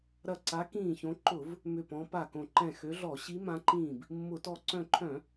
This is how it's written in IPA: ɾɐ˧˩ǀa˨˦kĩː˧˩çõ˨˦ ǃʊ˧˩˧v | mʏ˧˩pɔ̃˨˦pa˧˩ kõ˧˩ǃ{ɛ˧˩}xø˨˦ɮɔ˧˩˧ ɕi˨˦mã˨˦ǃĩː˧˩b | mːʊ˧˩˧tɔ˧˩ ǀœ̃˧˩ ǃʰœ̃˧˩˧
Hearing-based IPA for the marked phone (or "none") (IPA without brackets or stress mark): ɛ̃˧˩